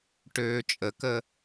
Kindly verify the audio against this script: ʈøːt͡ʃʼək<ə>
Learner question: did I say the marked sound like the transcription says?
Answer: yes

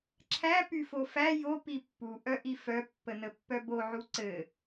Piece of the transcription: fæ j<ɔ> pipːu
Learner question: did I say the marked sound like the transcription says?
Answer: no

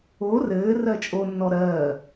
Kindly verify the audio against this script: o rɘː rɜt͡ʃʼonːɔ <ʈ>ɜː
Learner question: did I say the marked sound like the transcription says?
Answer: no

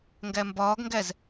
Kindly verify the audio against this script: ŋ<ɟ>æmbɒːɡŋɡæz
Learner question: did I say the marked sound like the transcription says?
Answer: no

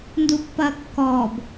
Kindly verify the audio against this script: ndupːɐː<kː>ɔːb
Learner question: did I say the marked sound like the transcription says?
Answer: yes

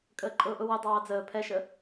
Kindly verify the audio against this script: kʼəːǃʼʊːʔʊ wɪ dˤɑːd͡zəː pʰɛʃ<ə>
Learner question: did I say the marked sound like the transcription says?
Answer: yes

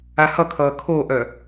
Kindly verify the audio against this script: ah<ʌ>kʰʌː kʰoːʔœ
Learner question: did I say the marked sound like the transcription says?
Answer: yes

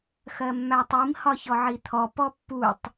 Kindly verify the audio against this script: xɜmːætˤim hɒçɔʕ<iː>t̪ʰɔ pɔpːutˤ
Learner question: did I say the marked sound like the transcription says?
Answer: no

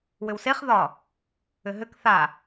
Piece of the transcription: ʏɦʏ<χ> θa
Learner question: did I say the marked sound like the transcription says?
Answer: no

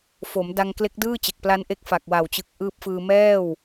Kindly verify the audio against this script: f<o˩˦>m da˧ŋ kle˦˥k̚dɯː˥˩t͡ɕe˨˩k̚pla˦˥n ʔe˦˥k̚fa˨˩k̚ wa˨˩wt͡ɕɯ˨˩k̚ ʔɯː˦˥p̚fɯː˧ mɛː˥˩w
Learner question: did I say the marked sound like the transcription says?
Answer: yes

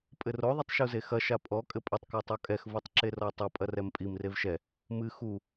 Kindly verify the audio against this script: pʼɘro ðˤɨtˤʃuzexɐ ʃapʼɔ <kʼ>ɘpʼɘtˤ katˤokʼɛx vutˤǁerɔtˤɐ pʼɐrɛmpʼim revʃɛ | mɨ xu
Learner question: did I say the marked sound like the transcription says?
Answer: yes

